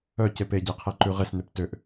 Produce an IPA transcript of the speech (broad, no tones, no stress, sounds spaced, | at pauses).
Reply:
œ c e p e ɟ e qʰ ɛ ǃ ʉ ʁ e s n ø p t ø ʔ